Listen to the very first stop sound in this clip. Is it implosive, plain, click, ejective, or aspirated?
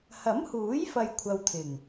aspirated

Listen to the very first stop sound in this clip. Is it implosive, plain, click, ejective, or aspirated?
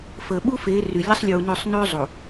implosive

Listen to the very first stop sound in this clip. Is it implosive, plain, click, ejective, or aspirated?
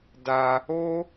plain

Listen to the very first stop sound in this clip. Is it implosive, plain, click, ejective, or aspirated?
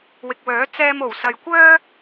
plain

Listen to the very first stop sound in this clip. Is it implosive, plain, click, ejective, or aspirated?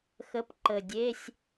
plain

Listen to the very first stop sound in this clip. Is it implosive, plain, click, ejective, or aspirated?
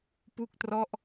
plain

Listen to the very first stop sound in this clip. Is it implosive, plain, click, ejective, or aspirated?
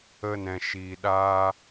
implosive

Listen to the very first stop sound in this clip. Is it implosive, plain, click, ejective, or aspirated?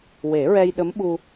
implosive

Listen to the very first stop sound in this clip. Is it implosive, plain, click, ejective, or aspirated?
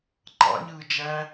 click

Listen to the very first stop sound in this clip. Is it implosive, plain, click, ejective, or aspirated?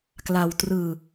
plain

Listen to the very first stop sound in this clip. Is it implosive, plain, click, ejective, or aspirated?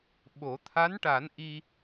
implosive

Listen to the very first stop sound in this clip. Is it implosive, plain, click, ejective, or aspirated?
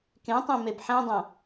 plain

